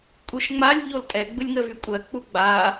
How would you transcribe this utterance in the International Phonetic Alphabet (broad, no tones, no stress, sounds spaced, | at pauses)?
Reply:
kʷʼ ɯ ʃ ŋ͡m a lʲ ʎ o l tʼ ɛ ɡ͡b ɯ lʲ ŋ ə v y kʷʼ ɜ k͡p u ɡ͡b a